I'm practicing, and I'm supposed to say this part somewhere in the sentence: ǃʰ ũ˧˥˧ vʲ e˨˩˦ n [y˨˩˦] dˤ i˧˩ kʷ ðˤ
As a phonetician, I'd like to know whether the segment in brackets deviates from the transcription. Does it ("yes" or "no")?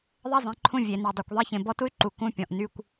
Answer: yes